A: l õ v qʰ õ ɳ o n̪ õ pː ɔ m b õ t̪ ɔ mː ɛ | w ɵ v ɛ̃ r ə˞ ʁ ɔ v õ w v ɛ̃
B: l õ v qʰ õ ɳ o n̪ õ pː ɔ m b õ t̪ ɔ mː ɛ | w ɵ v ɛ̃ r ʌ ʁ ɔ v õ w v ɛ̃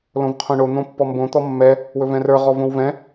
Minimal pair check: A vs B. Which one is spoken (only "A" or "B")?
A